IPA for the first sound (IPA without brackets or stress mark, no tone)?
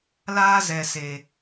l